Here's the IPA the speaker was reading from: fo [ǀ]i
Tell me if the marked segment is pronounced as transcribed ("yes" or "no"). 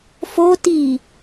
no